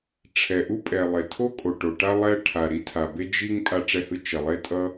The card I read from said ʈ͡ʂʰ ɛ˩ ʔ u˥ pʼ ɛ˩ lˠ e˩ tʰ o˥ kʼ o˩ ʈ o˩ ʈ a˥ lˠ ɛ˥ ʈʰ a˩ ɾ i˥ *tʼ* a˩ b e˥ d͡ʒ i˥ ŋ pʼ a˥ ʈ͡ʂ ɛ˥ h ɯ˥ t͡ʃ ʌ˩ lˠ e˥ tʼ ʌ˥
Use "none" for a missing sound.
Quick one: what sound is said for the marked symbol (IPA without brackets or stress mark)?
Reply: tʰ